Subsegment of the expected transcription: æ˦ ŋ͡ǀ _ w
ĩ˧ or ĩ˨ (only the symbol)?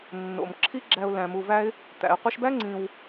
ĩ˧